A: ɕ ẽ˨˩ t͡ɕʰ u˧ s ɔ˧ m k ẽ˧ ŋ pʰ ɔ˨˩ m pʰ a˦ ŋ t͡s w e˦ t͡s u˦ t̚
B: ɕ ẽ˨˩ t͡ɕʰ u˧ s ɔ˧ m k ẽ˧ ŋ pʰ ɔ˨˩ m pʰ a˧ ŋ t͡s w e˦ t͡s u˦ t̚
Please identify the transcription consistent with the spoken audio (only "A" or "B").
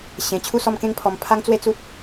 A